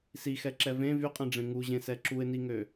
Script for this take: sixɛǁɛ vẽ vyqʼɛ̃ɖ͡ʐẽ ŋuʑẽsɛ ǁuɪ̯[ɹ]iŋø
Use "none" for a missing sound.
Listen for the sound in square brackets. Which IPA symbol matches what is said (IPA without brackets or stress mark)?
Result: n